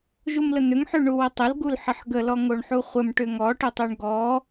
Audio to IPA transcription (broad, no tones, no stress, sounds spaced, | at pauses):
ʒ u m l ə n̪ ʏ ŋ ħ ʉ ɳ u w ə tˤ ə l ɡ u l ħ ə ħ ɡ ə l ɔ ŋ o ɳ ħ u χʷ ə m ʈ ʏ ŋ ɔ ʈ ʏ tˤ u ɳ ɡ ɔ